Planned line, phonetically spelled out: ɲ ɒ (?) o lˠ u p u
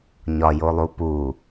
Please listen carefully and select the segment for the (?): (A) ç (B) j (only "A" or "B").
B